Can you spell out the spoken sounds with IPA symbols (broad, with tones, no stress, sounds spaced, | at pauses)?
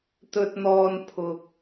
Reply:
t̪ ɵ˨ t̚ n̪ ɔː˨ n pʰ ʊ˨ k̚